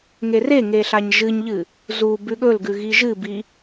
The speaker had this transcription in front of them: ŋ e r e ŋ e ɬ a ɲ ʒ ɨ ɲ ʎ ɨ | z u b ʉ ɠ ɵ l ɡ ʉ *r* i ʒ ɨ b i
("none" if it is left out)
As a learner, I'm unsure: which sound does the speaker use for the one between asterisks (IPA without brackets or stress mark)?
ɣ